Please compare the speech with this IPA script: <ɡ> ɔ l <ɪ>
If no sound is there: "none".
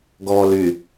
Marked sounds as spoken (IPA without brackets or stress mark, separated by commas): ɡ, y